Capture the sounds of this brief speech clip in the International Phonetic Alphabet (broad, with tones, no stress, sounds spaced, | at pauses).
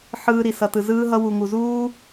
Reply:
ħ ɯː˨ ɾ i˩ s ʌ˩ t ɯ˩ z ɯː˨ ɦ ʌ˨ w u˩ ŋ u˩ z uː˦